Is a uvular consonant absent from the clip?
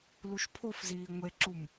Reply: yes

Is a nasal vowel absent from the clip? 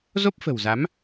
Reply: yes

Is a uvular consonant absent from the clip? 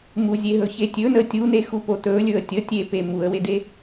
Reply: yes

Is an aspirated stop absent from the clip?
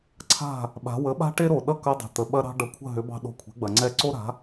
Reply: no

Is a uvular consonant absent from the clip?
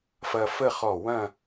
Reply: no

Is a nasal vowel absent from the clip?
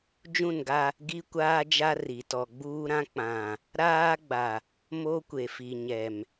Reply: no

